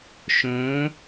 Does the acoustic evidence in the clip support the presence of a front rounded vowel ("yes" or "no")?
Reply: no